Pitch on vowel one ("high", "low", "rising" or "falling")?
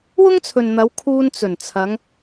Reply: high